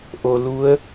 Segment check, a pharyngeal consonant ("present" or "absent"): absent